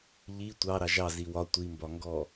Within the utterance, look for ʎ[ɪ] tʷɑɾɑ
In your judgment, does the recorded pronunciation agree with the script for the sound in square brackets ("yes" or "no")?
no